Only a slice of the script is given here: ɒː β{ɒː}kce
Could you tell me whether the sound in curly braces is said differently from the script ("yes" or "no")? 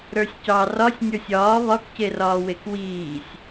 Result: yes